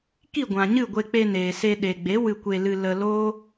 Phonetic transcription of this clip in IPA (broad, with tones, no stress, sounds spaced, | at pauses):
k i˦˨ ɡʷ ã˨ ɲ ɨ˦˨ ɡʷ e˧ k͡p e˧ n eː˨ s e˧ ɗ e˨ ɡ͡b e˨˦ w ɨ˧ kʷ e˧ l ɨ˧ l ə˧ l oː˦